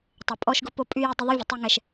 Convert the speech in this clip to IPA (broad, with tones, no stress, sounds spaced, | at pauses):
tˤ ə˨ pʼ ɔ˦ ʃ ɡ ʊ˦ p o˦ pʼ y˦ j ɪ˦ dˤ ə˦ ðˤ y˦ vʲ ə˨ tˤ y˦ ŋ ɛ˦ ʃ